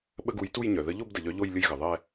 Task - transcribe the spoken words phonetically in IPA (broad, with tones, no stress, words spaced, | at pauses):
ɓə˦˨ɡu˨˦j tu˦˨jɲœ˩ ðə˨˦ʎo˦˨b də˩ʎœ˨˦ ʎo˦˨j lʲə˦˨jɣə˩ ðˤɛ˦˨